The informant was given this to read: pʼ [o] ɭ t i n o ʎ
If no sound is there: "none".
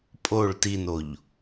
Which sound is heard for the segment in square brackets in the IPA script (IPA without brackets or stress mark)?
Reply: o